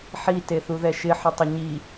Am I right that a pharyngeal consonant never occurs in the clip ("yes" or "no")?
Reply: no